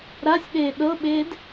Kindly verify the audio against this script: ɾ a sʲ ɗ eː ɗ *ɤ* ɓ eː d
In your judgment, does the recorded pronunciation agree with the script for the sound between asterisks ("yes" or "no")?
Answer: yes